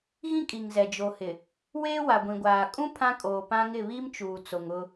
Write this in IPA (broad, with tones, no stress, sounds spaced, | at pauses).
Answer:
ɣ ĩ˦ kʼ i˨ ŋ z ɛ˨ d͡ʒ o˨ h ɪ˨ | w eː˦ w a˨ ɡʷ ĩ˨ ɡʷ aː˨ kʼ ũ˦ pʰ ã˦ kʼ oː˨ p ã˦ ŋ ɪ˦˨ β i˦ m t͡ʃ uː˨ t͡s o˨ ŋ ʊ˦